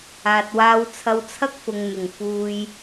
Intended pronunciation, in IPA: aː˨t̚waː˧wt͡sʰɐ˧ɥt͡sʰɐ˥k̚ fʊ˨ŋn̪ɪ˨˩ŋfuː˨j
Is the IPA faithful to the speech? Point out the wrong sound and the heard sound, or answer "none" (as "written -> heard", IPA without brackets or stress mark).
ɥ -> w